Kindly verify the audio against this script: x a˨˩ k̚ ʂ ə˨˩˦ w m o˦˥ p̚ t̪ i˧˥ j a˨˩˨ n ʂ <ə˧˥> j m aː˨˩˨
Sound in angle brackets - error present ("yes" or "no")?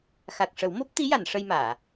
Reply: yes